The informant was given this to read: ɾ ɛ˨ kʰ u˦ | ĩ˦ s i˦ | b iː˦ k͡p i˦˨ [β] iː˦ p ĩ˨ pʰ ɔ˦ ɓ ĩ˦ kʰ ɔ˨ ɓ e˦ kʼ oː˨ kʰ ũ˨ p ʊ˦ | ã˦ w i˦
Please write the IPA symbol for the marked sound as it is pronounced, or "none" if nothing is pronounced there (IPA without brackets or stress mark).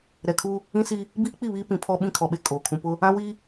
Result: β